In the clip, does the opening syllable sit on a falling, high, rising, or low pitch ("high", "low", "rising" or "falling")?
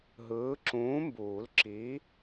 rising